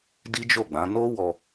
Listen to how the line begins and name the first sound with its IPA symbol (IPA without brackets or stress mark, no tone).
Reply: d